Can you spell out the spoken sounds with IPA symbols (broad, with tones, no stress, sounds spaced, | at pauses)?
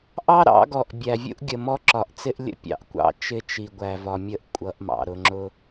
ʔ ɑ˦ ɾ ɑ̰˨˦ ɡ ɔ˨ ʔ bʲ æ˨ vʲ ṵ˦ ʔ ɡʲ ə˨ m ɔ˦ ǁ ɒ˨ ʔ t͡s ɪ˦ ʔ lʲ ə̰˦ pʲ ɑ̰˨ ʔ kʷ ɑ̰˦˨ t͡ʃ ɪ˦ t͡ʃ i˨ ɡʷ æ˨ v ɒ˨ mʲ ə˦ ʔ kʷʼ ʌ˨˦ ʔ m ɑ̰˨ ɾ ʊ˨ ŋ͡ǁ ʊ˦